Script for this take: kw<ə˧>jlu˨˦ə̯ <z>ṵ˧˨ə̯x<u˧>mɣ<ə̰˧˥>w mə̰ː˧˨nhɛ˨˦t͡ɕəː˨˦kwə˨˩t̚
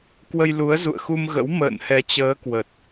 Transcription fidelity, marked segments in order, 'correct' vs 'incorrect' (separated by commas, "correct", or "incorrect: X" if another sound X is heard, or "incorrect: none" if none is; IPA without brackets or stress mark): correct, correct, correct, correct